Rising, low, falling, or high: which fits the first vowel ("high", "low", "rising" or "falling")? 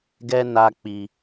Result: high